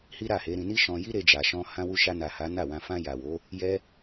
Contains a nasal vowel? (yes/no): yes